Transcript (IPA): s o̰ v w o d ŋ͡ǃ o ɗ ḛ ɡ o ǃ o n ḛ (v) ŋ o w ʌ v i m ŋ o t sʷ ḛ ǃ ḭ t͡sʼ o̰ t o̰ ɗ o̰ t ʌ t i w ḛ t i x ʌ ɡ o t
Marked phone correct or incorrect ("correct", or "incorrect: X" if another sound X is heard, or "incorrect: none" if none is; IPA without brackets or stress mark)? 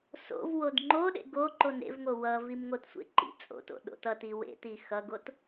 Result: correct